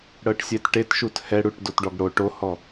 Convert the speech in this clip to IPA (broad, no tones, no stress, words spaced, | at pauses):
ɽɤʈsʲɛtʈetʃut hɛɽuʈ dotɖɔɡɽo ʈohɔ